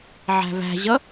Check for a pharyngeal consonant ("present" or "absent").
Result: present